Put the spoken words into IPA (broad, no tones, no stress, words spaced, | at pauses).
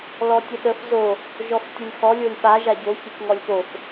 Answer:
lɔtʲəɗəf zo | ʒɔftʲəlʲxɔ lʲolʲɓa ʒaɟo çekŋɔlʲpof